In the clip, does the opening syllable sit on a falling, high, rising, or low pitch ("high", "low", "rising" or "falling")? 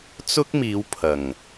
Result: high